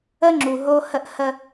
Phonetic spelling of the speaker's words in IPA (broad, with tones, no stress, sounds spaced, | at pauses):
ə˦ ŋ͡ǁ u˨ ɦ o˦ h ə˦ ʔ h ə˦